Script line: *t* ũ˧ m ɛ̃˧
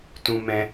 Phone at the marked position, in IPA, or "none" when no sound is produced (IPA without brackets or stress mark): t